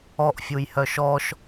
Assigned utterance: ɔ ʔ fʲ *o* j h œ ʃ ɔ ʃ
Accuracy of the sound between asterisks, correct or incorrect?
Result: incorrect